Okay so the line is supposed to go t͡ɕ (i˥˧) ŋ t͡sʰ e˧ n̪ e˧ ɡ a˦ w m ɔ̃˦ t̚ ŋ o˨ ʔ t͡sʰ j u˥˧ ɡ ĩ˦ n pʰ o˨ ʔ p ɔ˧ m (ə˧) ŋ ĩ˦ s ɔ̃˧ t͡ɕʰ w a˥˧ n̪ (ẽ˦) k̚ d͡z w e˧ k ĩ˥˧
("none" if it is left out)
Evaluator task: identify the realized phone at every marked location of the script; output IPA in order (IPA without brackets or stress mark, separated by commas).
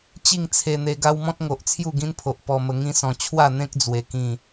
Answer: i˥˧, ə˧, ẽ˦